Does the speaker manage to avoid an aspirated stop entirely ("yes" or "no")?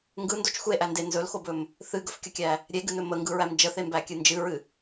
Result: yes